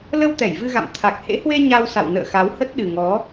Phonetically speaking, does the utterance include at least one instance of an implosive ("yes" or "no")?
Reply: yes